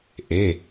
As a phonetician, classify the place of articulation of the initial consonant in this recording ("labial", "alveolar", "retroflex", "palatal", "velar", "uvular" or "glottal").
glottal